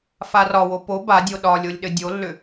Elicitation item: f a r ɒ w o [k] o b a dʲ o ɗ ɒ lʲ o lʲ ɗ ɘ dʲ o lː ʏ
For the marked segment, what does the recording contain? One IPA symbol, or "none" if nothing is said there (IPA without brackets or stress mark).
p